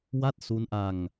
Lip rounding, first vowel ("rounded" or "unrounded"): unrounded